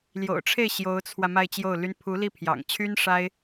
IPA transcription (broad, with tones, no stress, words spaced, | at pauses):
ljo̰˨˩ʊ̯ʈ͡ʂʰe˥˩ɪ̯ ɕjo˧˥ʊ̯t͡sʰwä˧ ma˥˧ɪ̯t͡ɕjo˥˩ʊ̯ly˥n pʰu˧˥li˥˩pʰjɑ̰˨˩ŋt͡ɕʰy˥n ʂa˥ɪ̯